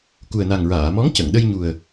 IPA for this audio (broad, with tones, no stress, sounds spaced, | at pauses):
k u˨˩ ə̯ n a˨˩ ŋ ɹ aː˨˩˨ m ɔ˧˥ ŋ c ə˨˩˨ ŋ ɗ ə˧ j ɲ u˨˩ ə̯